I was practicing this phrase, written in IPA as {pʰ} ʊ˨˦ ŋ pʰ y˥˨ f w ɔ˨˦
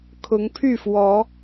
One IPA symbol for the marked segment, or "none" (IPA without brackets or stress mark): kʰ